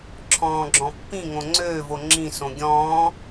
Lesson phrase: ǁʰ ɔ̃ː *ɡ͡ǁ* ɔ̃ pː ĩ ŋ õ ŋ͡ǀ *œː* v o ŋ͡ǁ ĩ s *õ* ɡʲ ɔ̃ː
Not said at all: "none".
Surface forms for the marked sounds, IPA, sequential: ɡ͡ǁ, øː, õ

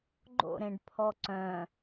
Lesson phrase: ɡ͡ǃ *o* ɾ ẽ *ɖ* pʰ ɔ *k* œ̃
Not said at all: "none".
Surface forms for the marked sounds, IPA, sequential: o̰, ɖ, ǀ

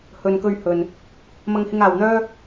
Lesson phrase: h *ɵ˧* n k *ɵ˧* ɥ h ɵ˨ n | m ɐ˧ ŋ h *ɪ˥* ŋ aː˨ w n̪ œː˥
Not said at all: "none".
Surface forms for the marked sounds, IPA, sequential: ɵ˨, ɵ˧, ɪ˧

